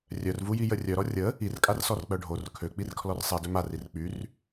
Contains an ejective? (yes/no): yes